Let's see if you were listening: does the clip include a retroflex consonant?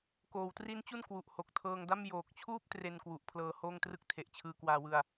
no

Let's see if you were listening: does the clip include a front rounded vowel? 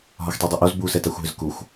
yes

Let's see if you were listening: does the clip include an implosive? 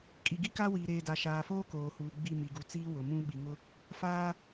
yes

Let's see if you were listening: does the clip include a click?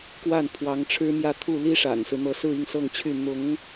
no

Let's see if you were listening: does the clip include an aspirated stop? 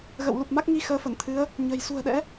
yes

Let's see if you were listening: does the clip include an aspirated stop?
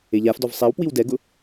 no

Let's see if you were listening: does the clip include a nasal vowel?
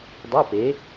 no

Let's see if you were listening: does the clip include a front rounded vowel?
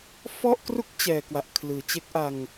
no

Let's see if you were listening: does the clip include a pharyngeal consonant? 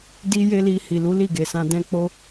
no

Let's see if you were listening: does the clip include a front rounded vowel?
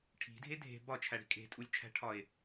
no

